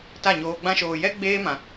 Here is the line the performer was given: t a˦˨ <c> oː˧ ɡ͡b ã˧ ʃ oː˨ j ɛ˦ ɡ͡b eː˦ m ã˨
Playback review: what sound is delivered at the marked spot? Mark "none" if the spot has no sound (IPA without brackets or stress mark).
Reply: ɲ